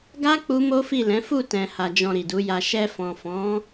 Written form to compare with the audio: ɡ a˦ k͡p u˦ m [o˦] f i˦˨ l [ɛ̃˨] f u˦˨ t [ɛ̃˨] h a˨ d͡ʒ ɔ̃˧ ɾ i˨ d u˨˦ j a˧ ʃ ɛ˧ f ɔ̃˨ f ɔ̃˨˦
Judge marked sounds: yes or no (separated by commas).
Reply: yes, no, yes